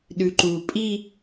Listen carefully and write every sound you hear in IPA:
ɗʉǃu pʼi

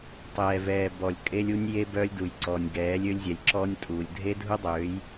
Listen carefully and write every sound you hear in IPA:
tˤɛː˨vɛː˨ bɔ˨lʲ kʼe˦lʲu˦nʲ je˦bœː˦lʲdu˨j ǀɔː˨nʲɡɛː˨˦lʲø˦lʲzʲɛ˨lʲ ǁɔː˦nʲtʼuː˨lʲ dʱe˦dʱu˦dˤøː˨˦j

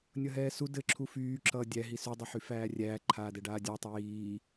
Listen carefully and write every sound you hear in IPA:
nʲʌɦɛːsu dɘ ǁʰufyːǁʌː dʲæɦi sydˤɛħy fæːrʲæːǃʰaːdɛ ɖaːdʲatˤɘ jiː

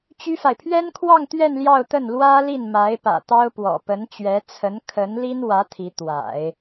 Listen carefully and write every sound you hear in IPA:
t͡ɕy˥fa˨ɪ̯ pʰɥɛ˥nkʰwɑ˥˧ŋt̪ɥɛ˥˧n ljɑ˥˧ʊ̯t̪ə˥˩n lwä˥li˥˩n ma˧˥ɪ̯pä̰˨˩t̪ɑ˥ʊ̯pwɔ̰˨˩ pə˧˥nt͡ɕɥɛ˧˥ t͡sʰə˧˥nkʰə˧˥nli˥n wä˧˥ t̪ʰi˧˥ t̪wa̰˨˩˦ɪ̯

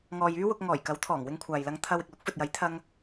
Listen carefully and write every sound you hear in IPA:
ŋɔː˨jyː˥wʊ˧k̚ ŋɔː˨˩jkɐ˨˥wt̪ʰɔː˨˩ŋ wɪ˧ŋkʷʰaː˨jlɐ˧ŋ t̪ʰɐ˧w ɪ˨k̚lʊ˨˥k̚fɵ˨t̚jɐ˨˥j t̪ʰɐ˥ŋ

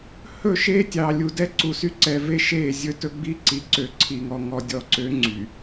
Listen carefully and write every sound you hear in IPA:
hɵ˦˨ʃe˦tʲɑ˨ lʲu˨dɛ˦ǀu˨sy˦ ǀɛ˨ve˦ ʃe˦˨zʲɵ˦tɵ˦ ɡ͡bi˦ǀi˨ ǀø˨ ǀʰi˨ŋɔ˨ ŋɔ˨dʲɔ˨ǀø˨˦ ŋ͡ǀy˨

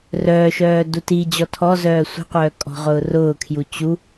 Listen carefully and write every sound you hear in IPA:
rœːʃœː dutid͡ʑɔ tʰɔ zœːsʷi̤qʷœː kʼɔ̤ʁʊːrʊːkʰju t͡ɕu

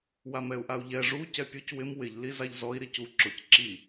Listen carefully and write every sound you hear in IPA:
wamɛu̯ʔau̯ʎɛ ʐu cɛpʲuc wɪm wɪʎ lizaʎzɔi̯ ɾicu ǁʊc ǁi

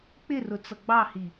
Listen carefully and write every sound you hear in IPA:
k͡pɪrʊ t͡sʌɡ͡bɑhi

